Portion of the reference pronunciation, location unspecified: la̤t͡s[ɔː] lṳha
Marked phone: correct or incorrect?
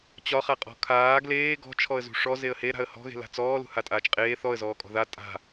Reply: correct